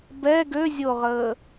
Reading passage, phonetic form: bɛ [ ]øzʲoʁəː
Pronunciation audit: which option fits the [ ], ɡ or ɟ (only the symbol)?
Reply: ɡ